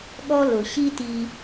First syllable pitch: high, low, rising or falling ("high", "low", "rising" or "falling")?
high